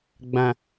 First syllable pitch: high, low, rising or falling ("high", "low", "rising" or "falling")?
low